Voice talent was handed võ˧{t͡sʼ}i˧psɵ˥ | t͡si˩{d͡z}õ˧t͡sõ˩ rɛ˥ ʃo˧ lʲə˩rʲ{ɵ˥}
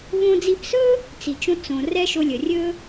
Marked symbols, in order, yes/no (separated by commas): no, no, yes